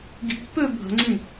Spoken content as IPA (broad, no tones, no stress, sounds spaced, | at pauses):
ɡ i̤ pː ø bʱ ə̤ ŋ͡ǀ ĩ